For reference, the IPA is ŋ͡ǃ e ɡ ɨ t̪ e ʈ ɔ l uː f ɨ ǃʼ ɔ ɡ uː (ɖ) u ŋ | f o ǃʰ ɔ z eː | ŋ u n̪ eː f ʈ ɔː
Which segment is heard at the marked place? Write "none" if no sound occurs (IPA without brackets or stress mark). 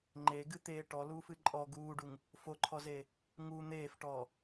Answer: ɖ